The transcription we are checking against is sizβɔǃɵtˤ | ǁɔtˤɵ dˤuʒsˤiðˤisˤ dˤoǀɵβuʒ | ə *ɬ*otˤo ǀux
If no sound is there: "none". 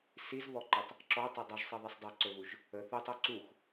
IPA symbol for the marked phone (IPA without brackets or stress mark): θ